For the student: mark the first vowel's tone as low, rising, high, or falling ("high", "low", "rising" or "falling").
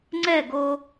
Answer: falling